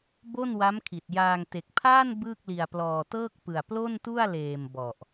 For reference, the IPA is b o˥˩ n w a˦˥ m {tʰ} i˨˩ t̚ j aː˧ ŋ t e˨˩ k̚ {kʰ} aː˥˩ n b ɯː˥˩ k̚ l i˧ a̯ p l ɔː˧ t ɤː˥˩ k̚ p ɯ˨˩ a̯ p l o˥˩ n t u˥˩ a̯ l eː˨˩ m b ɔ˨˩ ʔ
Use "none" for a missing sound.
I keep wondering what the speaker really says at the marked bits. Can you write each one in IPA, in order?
kʰ, pʰ

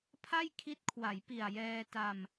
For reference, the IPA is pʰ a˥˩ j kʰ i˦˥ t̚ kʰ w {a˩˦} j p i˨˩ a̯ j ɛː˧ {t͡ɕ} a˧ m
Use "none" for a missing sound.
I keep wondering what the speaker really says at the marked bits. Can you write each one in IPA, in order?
a˩˦, t

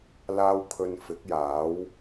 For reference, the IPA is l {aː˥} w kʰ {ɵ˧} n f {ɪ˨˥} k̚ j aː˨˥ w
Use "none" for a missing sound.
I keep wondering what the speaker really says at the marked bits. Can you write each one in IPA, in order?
aː˥, ɵ˧, ɪ˨˥

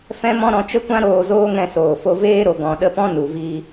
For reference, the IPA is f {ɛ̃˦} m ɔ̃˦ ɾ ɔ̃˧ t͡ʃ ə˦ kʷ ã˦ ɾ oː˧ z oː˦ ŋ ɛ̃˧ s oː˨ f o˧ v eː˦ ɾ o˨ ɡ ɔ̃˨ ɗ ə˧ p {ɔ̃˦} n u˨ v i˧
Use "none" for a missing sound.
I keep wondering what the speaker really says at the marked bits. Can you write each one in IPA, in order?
ɛ̃˦, ɔ̃˦

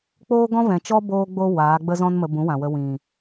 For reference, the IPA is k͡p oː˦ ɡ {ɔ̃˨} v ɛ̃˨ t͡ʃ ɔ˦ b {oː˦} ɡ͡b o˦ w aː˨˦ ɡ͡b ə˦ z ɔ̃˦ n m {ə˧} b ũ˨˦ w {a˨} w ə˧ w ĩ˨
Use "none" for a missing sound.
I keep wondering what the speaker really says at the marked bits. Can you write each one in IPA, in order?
ɔ̃˦, oː˦, ə˧, ã˨

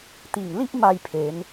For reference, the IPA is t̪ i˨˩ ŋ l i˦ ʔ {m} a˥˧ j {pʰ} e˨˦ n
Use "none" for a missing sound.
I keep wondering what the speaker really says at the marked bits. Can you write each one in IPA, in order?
m, pʰ

